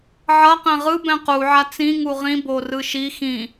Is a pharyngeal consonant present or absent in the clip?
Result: present